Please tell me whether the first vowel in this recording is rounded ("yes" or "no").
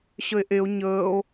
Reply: no